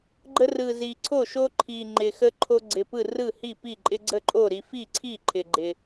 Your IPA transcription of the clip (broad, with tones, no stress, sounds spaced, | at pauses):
ɡ͡ǃ ə˦ r ɯ˨˩ z i˨˩ ǀʰ o˥˩ ʃ o˦ ǃʰ i˨˩ ŋ͡ǃ ɪ˨˩ x ə˦ ǃʰ o˦ ɡ͡ǀ ɪ˨˩ p ɯ˥˩ r ɯ˥˩ h i˥˩ p i˥˩ ǃʼ ɪ˦ ɡ͡ǀ ə˥˩ ǃʼ o˥˩ ɾ i˦ f i˥˩ ǀʰ i˥˩ ǃʰ ɪ˨˩ ɡ͡ǃ ɪ˨˩